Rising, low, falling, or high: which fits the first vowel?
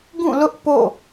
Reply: falling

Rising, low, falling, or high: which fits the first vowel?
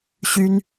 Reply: high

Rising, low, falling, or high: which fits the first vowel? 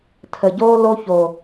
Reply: low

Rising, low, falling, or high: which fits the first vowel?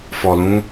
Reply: low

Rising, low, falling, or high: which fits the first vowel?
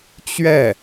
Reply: falling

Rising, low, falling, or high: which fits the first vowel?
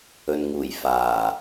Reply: low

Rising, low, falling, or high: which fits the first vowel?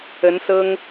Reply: rising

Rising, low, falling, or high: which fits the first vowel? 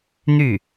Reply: falling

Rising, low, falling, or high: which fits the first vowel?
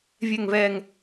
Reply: low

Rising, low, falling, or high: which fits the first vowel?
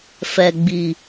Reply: low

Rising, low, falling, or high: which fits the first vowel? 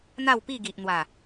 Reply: falling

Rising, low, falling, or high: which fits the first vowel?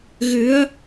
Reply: rising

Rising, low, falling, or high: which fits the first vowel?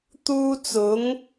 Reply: high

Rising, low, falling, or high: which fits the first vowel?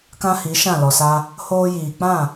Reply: high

